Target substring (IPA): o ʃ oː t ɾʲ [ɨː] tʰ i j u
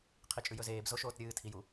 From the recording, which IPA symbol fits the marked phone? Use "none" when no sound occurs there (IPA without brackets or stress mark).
ɨː